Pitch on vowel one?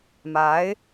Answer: rising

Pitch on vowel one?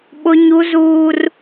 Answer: high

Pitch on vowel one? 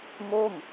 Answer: falling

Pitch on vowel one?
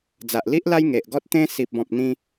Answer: low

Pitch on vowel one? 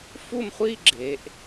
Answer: falling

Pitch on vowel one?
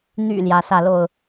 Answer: low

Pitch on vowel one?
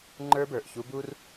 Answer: high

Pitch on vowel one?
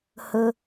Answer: low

